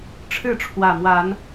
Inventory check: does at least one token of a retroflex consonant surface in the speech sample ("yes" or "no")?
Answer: yes